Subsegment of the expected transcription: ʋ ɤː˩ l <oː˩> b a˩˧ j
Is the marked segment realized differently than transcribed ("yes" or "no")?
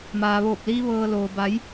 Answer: no